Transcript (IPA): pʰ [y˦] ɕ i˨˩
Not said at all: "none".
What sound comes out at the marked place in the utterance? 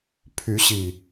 y˨˦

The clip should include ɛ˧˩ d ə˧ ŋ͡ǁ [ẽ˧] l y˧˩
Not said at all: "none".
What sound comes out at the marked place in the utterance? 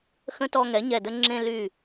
ẽ˧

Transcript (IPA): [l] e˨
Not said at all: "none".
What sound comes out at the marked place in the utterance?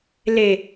l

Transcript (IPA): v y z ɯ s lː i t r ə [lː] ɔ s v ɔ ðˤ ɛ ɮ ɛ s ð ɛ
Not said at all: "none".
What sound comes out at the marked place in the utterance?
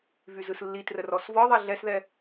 r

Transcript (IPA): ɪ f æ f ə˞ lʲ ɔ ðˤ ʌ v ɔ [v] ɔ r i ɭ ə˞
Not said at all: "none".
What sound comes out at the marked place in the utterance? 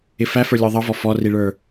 f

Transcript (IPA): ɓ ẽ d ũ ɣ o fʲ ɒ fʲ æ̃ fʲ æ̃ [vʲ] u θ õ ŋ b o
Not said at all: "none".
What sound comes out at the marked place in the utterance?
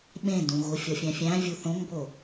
vʲ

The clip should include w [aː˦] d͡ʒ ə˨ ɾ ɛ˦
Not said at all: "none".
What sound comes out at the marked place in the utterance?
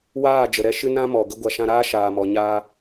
aː˦˨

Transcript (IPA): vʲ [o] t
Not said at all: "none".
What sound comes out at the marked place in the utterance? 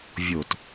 o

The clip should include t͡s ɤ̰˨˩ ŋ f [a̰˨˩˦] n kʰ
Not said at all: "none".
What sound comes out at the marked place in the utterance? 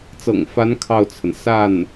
a˧˥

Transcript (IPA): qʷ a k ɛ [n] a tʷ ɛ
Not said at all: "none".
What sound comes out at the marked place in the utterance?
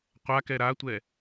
ɾ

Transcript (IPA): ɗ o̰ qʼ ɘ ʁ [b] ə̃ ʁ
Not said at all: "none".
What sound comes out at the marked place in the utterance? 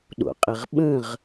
ɓ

